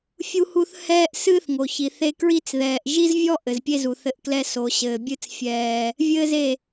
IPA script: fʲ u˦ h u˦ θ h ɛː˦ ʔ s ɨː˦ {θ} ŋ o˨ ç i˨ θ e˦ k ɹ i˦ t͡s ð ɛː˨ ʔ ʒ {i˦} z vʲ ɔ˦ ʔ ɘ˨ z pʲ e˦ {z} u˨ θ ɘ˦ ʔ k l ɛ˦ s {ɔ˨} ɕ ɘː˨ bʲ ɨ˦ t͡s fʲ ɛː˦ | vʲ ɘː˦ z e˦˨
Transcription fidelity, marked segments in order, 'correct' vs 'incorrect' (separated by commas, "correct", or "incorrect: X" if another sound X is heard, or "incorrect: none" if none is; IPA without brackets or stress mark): correct, correct, correct, incorrect: o˨